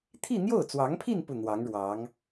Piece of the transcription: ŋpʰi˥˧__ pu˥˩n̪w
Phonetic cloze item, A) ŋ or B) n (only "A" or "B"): B